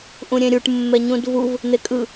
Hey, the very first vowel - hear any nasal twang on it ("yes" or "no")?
yes